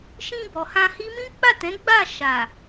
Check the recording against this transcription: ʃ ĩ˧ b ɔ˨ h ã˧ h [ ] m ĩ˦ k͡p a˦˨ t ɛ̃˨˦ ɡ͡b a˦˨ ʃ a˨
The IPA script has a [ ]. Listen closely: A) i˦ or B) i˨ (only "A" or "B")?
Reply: A